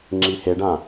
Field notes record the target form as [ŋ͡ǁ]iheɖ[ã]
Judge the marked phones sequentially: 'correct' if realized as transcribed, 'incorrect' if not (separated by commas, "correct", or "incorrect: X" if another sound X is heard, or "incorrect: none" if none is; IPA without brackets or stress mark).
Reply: correct, correct